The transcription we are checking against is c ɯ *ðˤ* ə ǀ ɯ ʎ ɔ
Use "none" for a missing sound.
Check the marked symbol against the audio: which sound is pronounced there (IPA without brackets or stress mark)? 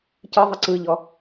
ðˤ